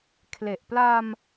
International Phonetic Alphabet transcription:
kʰle˨˩ʔ pla˧m

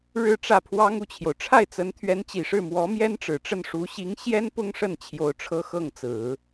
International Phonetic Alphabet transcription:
ɻɻ̩˥˧ʈ͡ʂä˥˩pʰwɑ˥ŋ u˥˩t͡ɕʰjo˩ʊ̯ʈ͡ʂʰa˥˩ɪ̯t͡sə˧˥n t̪ʰɥɛ˧˥nt͡ɕi˨˩ʂɻ̩˥˩ mwɔ˧˥mjɛ˥nʈ͡ʂɻ̩˨˩ʈ͡ʂə˥˩n ʂu˧˥ɕi˧˥ŋ ɕjɛ˥n pʊ˥ŋʂə˥˩n t͡ɕʰjo˥ʊ̯ ʈ͡ʂʰɤ˥xɤ˥˩ŋt͡sɹ̩˨˩˦

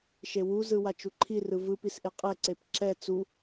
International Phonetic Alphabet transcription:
ʃewuzɯwa t͡ʃuǃʰi rɯvɯpisʔe qʼɛǀep ǁɛ t͡su

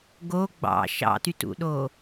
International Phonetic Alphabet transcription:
ɡo ɡ͡bɑ̰ ʃɑ̰tytṵɗo

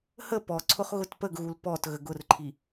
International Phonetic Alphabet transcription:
hə pɔǀʰʊχ ɣʊtpəɡɣul pɔt ɣəɡʊrǃʰi

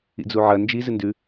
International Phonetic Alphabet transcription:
ḭd͡zuʕɐ nd͡ʒi zɨndʉ

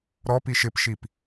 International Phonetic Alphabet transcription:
ɾɔ piʃɪpʃip

